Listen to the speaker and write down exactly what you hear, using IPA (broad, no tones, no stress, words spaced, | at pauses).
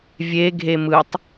vʲe ɡʱemɯtˤ